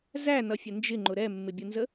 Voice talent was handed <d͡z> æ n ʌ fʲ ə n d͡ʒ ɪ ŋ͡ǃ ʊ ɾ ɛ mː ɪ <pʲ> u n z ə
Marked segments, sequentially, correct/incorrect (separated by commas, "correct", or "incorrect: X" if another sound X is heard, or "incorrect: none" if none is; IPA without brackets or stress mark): incorrect: z, incorrect: bʲ